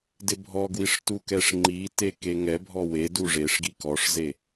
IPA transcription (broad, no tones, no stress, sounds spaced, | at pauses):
d ɪ bʱ ɔ ɡ w i ʂ t u k ɛ ʂ ŋ͡ǃ i t e k e ŋ ɛ bʱ ɔ w e d u ʐ e ʂ ɡ i k ɔ ʂ z e